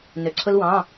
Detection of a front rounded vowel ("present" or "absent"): present